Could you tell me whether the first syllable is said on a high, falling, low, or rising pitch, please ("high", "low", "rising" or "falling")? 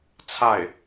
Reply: falling